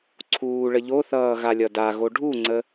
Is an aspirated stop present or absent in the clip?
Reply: present